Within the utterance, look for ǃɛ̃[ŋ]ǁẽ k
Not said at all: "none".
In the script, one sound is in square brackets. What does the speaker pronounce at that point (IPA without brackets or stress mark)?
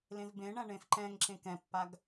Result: ŋ